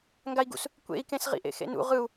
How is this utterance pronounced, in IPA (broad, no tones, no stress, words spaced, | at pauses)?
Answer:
ŋɡai̯ɡṵs | kʷḛi̯kẽs ʁḭʔḛxḛnṵ ʁɯu̯